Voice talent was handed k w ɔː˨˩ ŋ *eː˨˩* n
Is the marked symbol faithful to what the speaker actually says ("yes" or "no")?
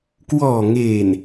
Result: yes